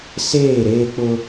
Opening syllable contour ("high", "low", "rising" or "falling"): falling